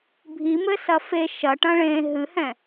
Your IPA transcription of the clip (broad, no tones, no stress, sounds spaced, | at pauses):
bʱ i m ɘ s ɐ f e ʃ ɐ ʈ ɐ̃ ɭ ẽ ɦ ɨ h ɛ̃